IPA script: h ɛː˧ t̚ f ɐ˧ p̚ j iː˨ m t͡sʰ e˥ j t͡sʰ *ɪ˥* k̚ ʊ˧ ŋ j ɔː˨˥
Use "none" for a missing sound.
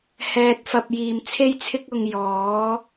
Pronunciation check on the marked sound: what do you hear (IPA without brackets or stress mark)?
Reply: ɪ˥